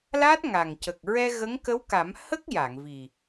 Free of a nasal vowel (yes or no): yes